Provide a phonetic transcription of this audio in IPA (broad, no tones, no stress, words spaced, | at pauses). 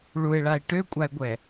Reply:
ɭue̯ɭae̯ ʈøkʷʼae̯ɡʷɛ